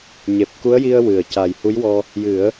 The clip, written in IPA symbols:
ɲ e˨˩ p̚ k u˧˥ ə̯ j i˧ ə̯ w ɨ˨˩˨ ə̯ c a˨˩ j h u˧˥ j w ɔ˧ | j ɨ˨˩˦ ə̯

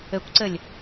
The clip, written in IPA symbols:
ɘ kʷ ǀ ɘ lʲ

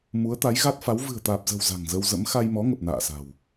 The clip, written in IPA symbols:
m u˨˦ ə̯ t̪ a˨˦ j ɣ a˦˥ t̚ f a˨˦ w v ɨ̤˨˩ ə̯ t̪ aː˨˩ p̚ z ə̤˨˩ w z a̤˨˩ ŋ z ə˧ w z ə̰˧˥ m x a˧ j m ɔ˨˦ ŋ ə˨˩ p̚ n a̰ː˧˨ s a̤˨˩ w

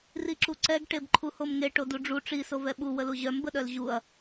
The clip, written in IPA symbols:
r i ǁ u ǀ ɛ ɡ ʈ e b ǃʰ u h o m ŋ e ʈ o d u ɖ͡ʐ u ʈ͡ʂ i s o v ɛ ɓ u w ə l u ʑ œ m b ə ɗ œ l ʑ u ɐ̯

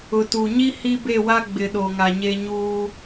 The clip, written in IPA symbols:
ʊ˨ t u˨ ɲ i˦ h i˦ b e˦˨ w a˦ ɡ͡b ɪ˨ ɗ o˨ ŋ a˨ ɲ e˦ ɲ uː˦

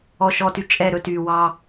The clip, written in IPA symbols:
ɔ˨ ʃ ɔ˨ t y˨ t͡ʃʼ ɛ˦˨ ɾ ɵ˦ t yː˨ w ɑ˦

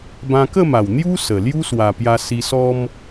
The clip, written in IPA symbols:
b ã˧ k ə˥˧ m a˨˩ w n̪ j u˦ s ə˨˩ l j u˦ s w a˨˩ p j a˧ s i˧ s ɔ˦ m

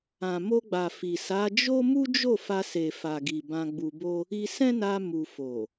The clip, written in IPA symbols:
ã˨ m o˧ ɡ͡b a˨ f i˨ s a˨˦ d͡ʒ o˦ m u˦ d͡ʒ o˦˨ f a˧ s e˨ f a˨ ɡ i˨ b ã˧ ɡ͡b u˧ b o˦ | i˧ s ɛ̃˦ n a˧ m u˨ f o˨

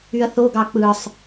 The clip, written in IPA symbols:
y ɐ̯ θ o ɡ ɑ k͡p ɯ sˤ

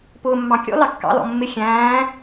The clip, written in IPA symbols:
p ʊː mː ɑ̃ kʲ ɔ̰ l ɑ kː ɑ̰ l ɔ̰ mː ɪ xʲ æ̃ː

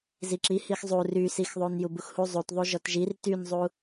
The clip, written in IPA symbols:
z i ǁ i h i x zˤ u r y s i x ðˤ u n j u b u x h u zˤ u t ðˤ u ʒ ɔ t ʒ i r t y n zˤ u

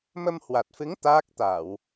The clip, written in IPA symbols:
m ə˧ m h w a˨˩ t̚ f ɨ˨˦ ŋ t̪ aː˦˥ k̚ t̪ a˧˩˨ w

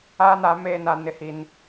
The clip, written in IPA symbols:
aː˦ n a˨˦ m eː˦ n a˦ n ɪ˦ h i˦ n

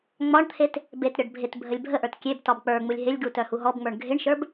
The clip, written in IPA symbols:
ŋ͡m ɒ ɳ t̪ʰ e t | b e t ɾʲ ɒ ɖ bʱ ɪ t bʱ ə lʲ bʱ ə ʔ ə˞ t kʲ e b t ɒ b k͡p ə˞ ŋ͡m u lʲ ɦ ɪ lʲ ɡ u t œ h u ɦ ɔ b ŋ͡m ə˞ ɳ ɡʱ ɪ ɳ ʃ ə˞ b

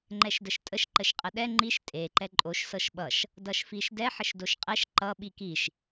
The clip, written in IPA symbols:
ŋ͡ǃ ɛ ʃ d ə ʃ tʼ ə ʃ ǃ ə ʃ qʼ ə ɗ ɛ ŋ͡ǃ i ʃ tʼ e ǃ ɛ ǃʼ o ʃ s ɤ ʃ ɓ ʌ ʃ | d ʌ ʃ f i ʃ d ɛ ħ ə ʃ d o ʃ qʼ ɛ ʃ ǃ ʌ ɓ i k i ʃ

